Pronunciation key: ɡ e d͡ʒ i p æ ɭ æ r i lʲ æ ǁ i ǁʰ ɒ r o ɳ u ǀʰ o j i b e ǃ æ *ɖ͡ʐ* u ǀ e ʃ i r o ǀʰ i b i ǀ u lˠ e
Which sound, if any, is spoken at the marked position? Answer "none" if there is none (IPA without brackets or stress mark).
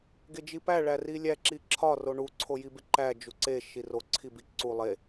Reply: d͡ʒ